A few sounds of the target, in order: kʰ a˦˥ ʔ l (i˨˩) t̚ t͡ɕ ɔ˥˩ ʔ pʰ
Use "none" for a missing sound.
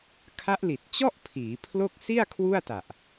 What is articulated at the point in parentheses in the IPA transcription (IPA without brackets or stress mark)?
i˨˩